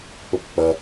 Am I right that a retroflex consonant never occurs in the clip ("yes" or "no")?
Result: yes